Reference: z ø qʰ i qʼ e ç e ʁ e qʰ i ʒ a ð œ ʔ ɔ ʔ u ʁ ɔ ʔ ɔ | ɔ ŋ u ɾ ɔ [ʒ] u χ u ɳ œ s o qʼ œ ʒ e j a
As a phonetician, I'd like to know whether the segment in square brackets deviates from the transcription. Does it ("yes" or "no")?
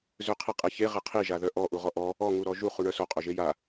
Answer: no